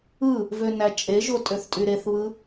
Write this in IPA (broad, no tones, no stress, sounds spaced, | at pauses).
ɯ | v ø n æ t͡ʃʼ e ʒ o tʼ ø θ tʼ y ɾ e θ β ɯ